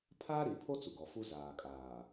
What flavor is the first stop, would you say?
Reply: aspirated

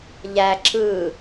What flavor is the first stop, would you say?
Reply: click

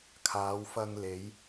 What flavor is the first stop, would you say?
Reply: aspirated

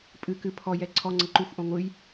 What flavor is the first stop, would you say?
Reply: ejective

